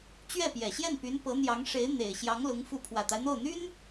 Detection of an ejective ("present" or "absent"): absent